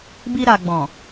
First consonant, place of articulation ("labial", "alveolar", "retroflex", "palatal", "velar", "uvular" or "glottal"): labial